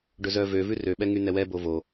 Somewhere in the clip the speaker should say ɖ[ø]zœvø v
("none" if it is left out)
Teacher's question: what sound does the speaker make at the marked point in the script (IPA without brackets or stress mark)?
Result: ɵ